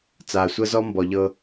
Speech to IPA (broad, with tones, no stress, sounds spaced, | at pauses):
t͡s aː˨ sʷ ɤ˦ z ɔ˦ m b ɔ˨ ʎ ɤ˦